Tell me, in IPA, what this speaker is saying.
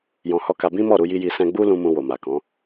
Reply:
j ɔ̃˧ h ɔ˦ k a˧ b ĩ˦ m ɔ˦˨ ɾ u˧ j i˧ j i˧ s ɛ̃˦ ɡ͡b u˦ l ũ˦ m ũ˧ w o˨ m a˨ k ɔ̃˨˦

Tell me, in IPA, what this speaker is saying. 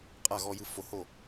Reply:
qʼ a˥˨ ɣ ɔ˧ j ɯ˧ f o˧ h o˥˨

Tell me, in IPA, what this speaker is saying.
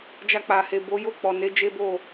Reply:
d͡ʒ a˧ k͡p a˨ h e˨ b o˨˦ j o˦˨ k͡p ɔ˨ n e˨˦ d͡ʒ e˦ b o˦˨

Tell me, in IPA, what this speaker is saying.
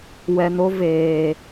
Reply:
w ɛ˨ n o˦ v eː˨

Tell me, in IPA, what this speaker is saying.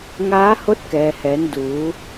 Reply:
ŋ aː˧˥ h o˧˥ t̚ k ɛː˩ h ɛː˩˧ n d uː˩˧

